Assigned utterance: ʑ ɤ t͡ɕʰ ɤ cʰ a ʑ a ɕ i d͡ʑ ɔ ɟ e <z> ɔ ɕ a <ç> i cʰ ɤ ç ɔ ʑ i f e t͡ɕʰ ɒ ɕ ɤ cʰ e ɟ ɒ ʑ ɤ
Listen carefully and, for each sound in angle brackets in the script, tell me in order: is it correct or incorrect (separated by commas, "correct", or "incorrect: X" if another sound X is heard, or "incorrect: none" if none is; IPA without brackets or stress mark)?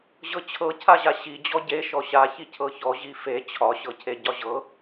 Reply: incorrect: ʃ, correct